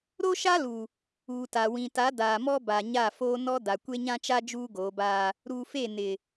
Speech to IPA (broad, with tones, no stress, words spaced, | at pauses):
ɾo˦ʃa˦lu˨ | uː˨ta˨ wĩ˨ta˨˦ daː˨mɔ˦ ba˨ɲa˦˨ foː˦ nɔ˦ da˨kʷe˦ ɲã˦t͡ʃa˦ d͡ʒuː˦ɡoː˨˦baː˦ | ɾu˨fe˦˨ nɪ˨